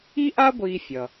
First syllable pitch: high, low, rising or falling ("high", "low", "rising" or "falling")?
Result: high